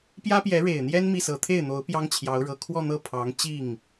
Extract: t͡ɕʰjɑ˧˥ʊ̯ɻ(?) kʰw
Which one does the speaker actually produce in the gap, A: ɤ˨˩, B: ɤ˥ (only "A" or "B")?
A